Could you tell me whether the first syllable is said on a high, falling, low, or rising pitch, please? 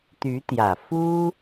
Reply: rising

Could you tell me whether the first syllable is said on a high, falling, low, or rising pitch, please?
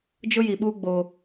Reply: high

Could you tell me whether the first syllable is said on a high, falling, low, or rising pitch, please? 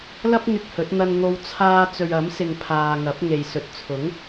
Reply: high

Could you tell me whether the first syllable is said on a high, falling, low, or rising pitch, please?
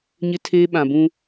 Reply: high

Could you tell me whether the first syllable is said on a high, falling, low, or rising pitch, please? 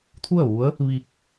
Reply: falling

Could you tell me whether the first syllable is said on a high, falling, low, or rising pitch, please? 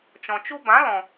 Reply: low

